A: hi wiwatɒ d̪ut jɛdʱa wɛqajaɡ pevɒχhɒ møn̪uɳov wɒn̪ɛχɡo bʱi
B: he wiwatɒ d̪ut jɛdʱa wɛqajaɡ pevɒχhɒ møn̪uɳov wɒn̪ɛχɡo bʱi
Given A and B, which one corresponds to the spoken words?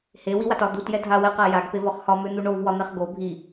B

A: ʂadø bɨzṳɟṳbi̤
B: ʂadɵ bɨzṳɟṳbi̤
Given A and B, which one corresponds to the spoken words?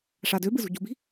A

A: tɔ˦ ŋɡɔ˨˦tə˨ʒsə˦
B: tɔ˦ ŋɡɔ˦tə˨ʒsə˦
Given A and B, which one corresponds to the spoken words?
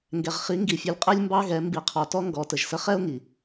A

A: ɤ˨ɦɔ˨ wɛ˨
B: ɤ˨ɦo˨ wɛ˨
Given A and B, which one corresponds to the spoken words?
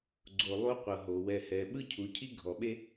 B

